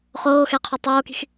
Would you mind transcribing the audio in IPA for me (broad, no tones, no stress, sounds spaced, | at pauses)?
χ oː x ɛ qʰ o tˤ oː k i̤ x